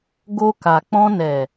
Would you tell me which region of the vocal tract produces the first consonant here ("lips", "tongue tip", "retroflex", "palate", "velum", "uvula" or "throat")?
velum